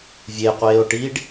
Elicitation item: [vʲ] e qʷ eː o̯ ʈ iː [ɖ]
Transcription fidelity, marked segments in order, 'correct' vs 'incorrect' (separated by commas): correct, correct